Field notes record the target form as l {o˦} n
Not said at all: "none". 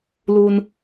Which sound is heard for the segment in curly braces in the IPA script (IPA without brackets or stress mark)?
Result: u˦